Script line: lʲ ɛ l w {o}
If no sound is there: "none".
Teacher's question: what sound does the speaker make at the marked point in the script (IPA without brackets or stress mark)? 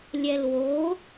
o